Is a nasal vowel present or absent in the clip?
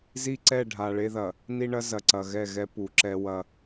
absent